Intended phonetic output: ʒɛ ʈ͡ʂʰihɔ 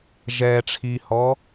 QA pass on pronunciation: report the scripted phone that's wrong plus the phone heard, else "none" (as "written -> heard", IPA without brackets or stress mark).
none